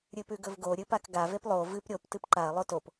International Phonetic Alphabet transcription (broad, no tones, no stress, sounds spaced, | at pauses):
ɾʲ ɨ p ʉ ɡ ɵ v ɡ o ɾʲ ɨ p a k ɡ a v e p lˠ o v ɨ p ɾʲ o p t ɨ p ǃ a ɐ̯ lˠ o t o p